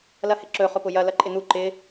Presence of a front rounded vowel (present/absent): absent